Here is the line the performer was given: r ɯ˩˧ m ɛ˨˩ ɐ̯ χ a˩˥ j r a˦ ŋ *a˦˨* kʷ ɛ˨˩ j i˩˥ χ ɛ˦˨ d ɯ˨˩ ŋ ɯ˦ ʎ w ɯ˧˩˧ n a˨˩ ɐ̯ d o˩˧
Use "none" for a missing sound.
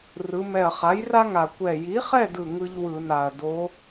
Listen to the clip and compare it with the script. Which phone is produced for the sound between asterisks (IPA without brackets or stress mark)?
a˨˩